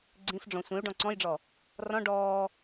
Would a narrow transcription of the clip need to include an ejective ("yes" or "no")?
no